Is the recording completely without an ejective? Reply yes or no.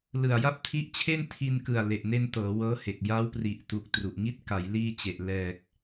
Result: yes